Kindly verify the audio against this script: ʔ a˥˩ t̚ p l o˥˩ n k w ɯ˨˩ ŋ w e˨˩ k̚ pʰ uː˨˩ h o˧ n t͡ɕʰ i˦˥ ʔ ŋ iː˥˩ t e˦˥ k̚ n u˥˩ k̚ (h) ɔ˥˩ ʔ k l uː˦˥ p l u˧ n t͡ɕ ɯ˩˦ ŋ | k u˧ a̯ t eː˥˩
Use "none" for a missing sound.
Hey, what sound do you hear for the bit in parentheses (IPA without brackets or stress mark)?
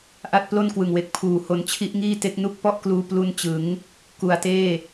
p